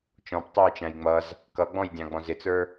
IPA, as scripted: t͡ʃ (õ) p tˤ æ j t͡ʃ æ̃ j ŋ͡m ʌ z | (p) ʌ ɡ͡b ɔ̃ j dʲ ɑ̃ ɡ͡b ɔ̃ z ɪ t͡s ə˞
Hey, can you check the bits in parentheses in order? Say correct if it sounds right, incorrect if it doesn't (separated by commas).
incorrect, incorrect